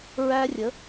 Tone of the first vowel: high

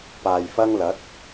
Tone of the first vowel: low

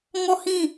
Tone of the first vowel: falling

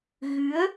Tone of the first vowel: rising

